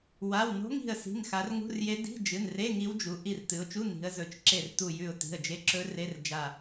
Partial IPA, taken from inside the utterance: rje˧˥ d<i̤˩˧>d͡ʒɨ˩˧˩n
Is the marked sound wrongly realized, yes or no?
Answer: yes